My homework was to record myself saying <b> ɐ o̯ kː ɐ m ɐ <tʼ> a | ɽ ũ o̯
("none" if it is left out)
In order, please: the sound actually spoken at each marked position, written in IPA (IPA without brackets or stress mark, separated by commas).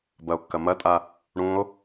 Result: b, tʼ